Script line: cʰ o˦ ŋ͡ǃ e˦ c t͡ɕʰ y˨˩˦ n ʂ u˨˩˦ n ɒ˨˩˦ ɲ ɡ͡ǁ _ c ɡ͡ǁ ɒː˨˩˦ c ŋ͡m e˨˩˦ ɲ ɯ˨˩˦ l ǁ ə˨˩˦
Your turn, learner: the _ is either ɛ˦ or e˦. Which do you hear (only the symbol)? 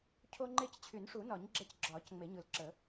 ɛ˦